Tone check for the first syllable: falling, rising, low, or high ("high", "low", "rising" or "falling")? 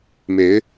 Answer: rising